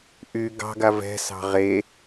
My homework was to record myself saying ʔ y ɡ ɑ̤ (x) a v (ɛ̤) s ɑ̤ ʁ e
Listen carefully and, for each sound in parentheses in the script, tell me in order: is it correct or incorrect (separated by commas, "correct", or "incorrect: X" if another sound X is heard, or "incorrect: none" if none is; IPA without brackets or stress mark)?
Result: incorrect: ɡ, correct